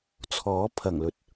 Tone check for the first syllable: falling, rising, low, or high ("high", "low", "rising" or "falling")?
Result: rising